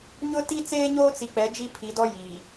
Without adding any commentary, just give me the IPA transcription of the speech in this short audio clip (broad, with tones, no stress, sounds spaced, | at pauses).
ɲ ʊ˦ t i˦ t͡s eː˦ ɲ oː˦ t͡s i˨ k͡p ɛ˨˦ d͡ʒ i˦ pʰ i˨˦ d ɔ˦ j iː˨